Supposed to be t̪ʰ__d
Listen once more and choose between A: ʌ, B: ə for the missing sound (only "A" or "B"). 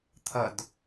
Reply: A